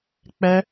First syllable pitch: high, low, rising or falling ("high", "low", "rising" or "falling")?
high